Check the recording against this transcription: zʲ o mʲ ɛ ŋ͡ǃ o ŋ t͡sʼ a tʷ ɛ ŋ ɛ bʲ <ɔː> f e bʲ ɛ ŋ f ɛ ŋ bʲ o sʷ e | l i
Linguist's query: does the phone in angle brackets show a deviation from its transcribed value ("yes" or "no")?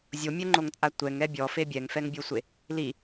yes